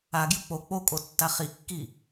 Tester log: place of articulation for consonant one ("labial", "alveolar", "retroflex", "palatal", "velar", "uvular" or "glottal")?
velar